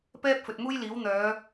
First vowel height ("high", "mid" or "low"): mid